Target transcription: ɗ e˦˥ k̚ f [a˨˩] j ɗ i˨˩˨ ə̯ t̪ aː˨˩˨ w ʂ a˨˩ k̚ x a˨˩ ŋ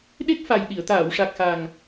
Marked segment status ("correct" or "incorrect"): correct